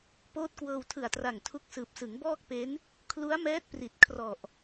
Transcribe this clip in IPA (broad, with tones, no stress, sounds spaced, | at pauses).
p oː˦˥ t̚ k w ɤː˧ w tʰ ɯ˨˩ a̯ t r a˨˩ ŋ tʰ u˦˥ k̚ s ɯː˨˩ p̚ s ɯ˩˦ ŋ b ɔː˥˩ k̚ p e˦˥ n | kʰ l u˦˥ a̯ m ɛː˦˥ t̚ p r i˨˩ t̚ kʰ r ɔ˨˩ ʔ